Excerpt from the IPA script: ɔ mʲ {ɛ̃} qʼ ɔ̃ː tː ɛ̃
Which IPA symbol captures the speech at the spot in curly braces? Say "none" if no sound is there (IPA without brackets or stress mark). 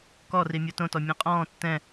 ɛ̃